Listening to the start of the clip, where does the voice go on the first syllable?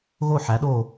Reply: falling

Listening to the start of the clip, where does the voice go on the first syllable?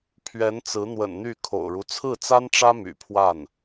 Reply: rising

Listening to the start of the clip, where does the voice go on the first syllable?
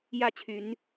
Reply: falling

